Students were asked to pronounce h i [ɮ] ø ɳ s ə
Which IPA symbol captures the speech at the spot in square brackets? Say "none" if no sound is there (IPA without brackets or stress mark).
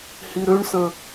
ɾ